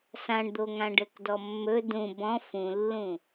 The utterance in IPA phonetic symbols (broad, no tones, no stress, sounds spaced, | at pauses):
s ã ɳ d̪ o ŋ ã ɖ ɘ k d ɔ mː ɵ d ũ b ɔ̃ f ũ lː ũ